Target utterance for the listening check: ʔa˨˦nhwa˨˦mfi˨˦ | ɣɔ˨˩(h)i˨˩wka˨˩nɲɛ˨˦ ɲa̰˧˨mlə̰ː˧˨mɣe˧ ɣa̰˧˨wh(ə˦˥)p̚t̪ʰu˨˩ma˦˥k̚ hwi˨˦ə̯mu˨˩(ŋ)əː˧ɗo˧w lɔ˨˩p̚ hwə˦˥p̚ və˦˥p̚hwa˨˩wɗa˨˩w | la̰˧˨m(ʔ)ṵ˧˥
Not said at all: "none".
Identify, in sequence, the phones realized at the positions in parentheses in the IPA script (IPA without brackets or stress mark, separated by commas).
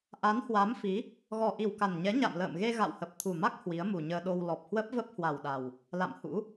ʔ, ə˨˩, ɲ, h